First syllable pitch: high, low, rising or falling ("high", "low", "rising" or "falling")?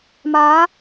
rising